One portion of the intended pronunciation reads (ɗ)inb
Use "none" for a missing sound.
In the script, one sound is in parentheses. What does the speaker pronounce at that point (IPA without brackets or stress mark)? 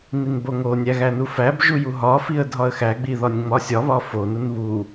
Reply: n